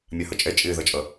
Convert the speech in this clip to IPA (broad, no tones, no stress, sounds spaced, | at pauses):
mʲ ɑ h ʌ t͡ʃʼ ɛ t͡ʃʼ ɪː ð ʌ t͡ʃʼ ʌ